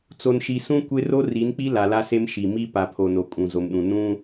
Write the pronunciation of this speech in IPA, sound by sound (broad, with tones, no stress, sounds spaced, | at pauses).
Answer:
t͡s o˨ n ʃ i˨ s ũ˦ kʷ e˦ r o˦ r i˨˦ n k͡p i˦ l a˨ l a˦ s e˦ m ʃ i˨ m i˦ p a˨ pʰ o˨ n o˨ kʼ ũ˨ z o˨ m ɗ ũ˨ n ũ˦